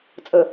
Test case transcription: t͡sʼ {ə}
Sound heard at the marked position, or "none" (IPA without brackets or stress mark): ə